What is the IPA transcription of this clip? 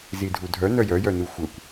zidʱudʱœ nœjœjœnu xʷœkʷ

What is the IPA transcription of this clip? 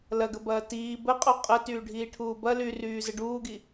lɐɡə bɐːtiː bəqʼu qʼə tyːɖʱiːʈʰuːbɐ lyryː zəɖuːɡi

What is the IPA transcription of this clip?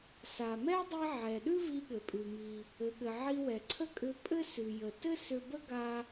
sa˩mɛ˥dˤi˧ ʕɛ˩ɗʉ˥ vi˧ɠɘ˩pʼʉ˩ mi˩ | ɘ˩ɠɘ˩ ʕi˧wɛ˩ ǀʰə˥kʼʏ˧ pʼɘ˥ sʉ˩jə˩tɘ˥ sʏ˧bə˥ɡa˧

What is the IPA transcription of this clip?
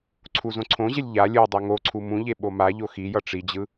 ǀʰuzõǀʰõʑelʲ ʎa lʲɯ dˤɛŋoǀʰu mũʎe ɓomaʎo xijʌ ʈ͡ʂid͡ʑɯ

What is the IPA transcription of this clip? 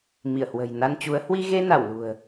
mi˧˩ə̯hwə̤˨˩j na˧nt͡ɕu˨˦ə̯ hwi˧ɣe˧na˧˩w lṳ˨˩ə̯

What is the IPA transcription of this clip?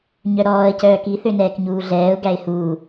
ɲœɾɔːə̯ cœːki θønɛːkɲuːɮɛːʊ̯ ɡæɪ̯huː

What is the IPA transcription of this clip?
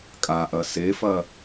kʼaʔɐ sefɐ

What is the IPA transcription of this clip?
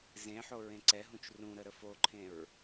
zẽħo ɹẽǀɛɦũt͡ʃ rũɾə ɾəfoǃʰẽɹ

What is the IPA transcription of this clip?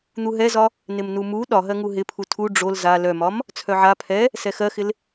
n̪uɦɛzɒ | nɪmnumu ɗɒɦɜŋu ɦɪpʰu tʰu ɖ͡ʐol za lœmɒm | t͡sʰœʕa pʰɛ | sɛxɜxɪl

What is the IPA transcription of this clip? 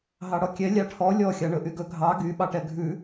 ɦɑɽɔkʲɛ lʲɑʈʰɔ lʲɔ xʲɑɳɵʔyɡɵ ɡʱɑ ɡy ɓɑʈɛɡʱʉ

